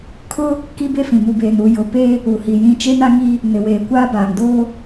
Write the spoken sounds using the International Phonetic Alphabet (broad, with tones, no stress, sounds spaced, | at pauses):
kʰ ʊ˦ | k i˦ b e˦ f ĩ˨ m u˨ b eː˨ n uː˨ j ʊ˨ p e˦ | u˨ h i˨ j ĩ˦ t͡ʃ e˦ n a˦ ŋ i˦ | n ɪ˨ w eː˨ kʷ aː˦ b aː˨ ŋ d oː˦